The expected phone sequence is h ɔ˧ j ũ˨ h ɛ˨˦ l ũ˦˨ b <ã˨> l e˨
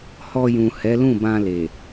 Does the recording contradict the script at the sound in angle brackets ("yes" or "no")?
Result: yes